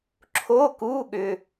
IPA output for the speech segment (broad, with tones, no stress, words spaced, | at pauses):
ǁʰo˧˥˧ku˧˥˧ɠʏ˧